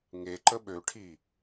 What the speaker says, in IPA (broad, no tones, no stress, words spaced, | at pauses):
ŋe ǃəɓøʈʰi